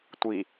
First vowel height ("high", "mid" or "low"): high